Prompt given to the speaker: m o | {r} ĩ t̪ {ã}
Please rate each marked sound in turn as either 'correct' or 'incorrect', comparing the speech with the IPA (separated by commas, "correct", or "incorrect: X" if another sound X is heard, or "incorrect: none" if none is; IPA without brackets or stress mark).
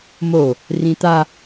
correct, incorrect: a